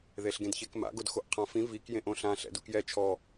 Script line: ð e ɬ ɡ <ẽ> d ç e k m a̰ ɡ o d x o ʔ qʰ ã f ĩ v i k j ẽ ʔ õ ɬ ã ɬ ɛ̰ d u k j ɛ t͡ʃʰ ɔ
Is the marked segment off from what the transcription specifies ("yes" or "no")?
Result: no